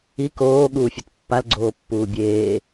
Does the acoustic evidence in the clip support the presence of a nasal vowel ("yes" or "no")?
no